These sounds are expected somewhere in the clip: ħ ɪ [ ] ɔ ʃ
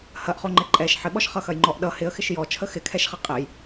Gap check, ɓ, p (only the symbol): ɓ